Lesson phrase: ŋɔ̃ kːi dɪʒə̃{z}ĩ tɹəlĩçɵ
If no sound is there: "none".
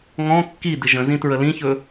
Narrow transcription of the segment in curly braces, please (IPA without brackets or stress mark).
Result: z